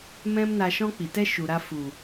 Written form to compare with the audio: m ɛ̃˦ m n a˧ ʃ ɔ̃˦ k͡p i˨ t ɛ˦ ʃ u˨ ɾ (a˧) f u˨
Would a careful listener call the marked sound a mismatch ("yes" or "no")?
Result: no